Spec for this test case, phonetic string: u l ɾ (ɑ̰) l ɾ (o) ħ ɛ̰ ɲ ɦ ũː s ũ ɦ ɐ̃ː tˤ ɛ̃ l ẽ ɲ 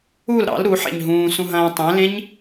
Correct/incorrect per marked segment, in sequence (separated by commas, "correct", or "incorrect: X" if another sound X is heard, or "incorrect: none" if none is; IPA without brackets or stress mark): correct, incorrect: u